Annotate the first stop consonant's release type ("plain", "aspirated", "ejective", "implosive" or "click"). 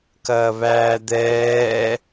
plain